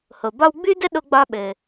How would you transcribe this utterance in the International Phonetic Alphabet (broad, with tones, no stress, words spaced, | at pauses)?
ho˩bɒ˥w ɡ͡bʉ˥də˥ ɗo˧ɡ͡bɒ˧ɓɘ˩